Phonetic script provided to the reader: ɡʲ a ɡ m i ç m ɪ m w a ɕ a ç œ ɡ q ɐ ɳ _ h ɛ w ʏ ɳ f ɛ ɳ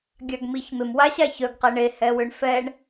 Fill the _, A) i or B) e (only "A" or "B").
B